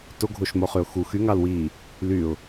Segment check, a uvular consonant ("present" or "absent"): present